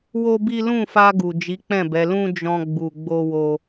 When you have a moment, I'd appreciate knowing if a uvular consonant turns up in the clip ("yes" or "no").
no